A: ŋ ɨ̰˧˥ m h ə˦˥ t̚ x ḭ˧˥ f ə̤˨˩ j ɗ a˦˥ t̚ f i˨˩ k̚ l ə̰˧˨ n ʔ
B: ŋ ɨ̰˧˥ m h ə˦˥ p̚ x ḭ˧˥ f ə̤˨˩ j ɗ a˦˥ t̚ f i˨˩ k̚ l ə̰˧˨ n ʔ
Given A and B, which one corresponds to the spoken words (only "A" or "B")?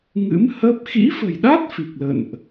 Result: B